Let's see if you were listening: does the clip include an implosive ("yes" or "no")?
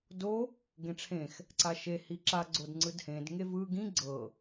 no